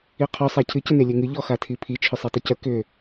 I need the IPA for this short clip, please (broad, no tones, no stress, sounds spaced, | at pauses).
i qʰ ɔ sˤ a cʰ ɨ c ə n e lʲ e ŋ ɨ ʎ ɔ x a tʰ i pʰ i t͡ʃʰ ʏ sˤ i tˤ ʏ c ə k ʏ